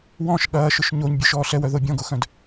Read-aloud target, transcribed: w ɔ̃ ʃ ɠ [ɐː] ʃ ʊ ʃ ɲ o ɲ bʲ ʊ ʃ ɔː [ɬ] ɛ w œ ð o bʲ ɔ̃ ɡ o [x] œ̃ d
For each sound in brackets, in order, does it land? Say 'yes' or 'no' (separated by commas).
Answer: yes, yes, yes